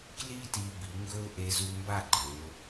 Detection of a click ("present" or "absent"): present